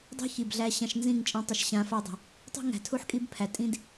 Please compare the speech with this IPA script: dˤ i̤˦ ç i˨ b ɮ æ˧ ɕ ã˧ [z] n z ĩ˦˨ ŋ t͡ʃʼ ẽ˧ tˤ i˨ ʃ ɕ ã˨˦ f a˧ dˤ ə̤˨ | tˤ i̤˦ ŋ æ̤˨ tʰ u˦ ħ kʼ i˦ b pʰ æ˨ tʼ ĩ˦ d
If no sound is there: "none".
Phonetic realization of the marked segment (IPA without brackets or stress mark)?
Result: ʃ